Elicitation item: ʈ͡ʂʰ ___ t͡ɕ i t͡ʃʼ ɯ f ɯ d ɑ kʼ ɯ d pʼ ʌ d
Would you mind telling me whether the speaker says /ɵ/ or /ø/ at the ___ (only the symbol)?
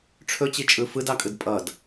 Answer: ɵ